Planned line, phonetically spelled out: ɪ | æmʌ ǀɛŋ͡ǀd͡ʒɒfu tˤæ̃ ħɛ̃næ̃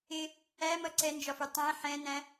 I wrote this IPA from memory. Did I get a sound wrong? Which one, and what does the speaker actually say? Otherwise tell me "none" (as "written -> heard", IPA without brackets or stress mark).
ŋ͡ǀ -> n